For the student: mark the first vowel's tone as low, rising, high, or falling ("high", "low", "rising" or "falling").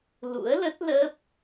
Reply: rising